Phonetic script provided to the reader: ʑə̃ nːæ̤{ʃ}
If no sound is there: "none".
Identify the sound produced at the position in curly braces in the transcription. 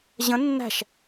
ʃ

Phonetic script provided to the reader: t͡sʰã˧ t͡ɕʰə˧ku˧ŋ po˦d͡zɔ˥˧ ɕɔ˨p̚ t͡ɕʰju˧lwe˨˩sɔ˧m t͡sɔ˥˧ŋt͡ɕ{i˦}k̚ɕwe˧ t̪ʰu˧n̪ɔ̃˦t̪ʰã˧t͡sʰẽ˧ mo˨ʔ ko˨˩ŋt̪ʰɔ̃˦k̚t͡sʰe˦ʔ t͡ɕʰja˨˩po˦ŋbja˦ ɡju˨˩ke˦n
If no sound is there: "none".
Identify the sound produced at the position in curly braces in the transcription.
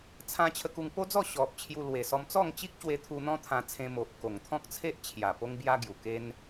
i˦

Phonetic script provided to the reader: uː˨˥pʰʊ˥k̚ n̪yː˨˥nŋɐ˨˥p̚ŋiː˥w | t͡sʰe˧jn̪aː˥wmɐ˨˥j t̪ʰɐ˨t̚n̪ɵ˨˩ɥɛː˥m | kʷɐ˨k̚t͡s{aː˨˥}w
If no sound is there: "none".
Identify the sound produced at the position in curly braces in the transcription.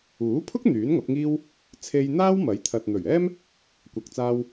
aː˧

